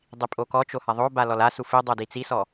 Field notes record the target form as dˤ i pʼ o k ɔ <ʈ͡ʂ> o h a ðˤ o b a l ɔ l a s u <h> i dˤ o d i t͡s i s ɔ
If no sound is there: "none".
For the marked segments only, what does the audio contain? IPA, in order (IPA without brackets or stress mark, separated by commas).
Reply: t͡ʃ, f